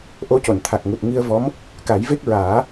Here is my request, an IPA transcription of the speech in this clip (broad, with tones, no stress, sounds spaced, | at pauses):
ʔ o˧˥ c o˨˩˨ n t̪ʰ a˨˩ k̚ ŋ u˨˩ t̚ ŋ i˧ ə̯ v ɔ˧˥ m | k a˨˩˦ j v e˦˥ k̚ ɹ aː˨˩˦